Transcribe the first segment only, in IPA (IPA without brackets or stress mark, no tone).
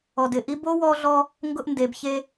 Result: ɔ